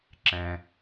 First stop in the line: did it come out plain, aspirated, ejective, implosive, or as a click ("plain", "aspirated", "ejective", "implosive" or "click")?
click